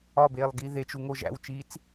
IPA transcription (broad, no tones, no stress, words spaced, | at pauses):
ɒbeːlˠɡi ðet͡ʃuŋo ʒæ̰wt͡ʃiːt͡s